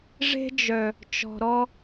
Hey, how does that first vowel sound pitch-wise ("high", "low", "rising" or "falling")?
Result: high